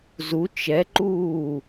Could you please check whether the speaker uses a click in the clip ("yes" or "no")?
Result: yes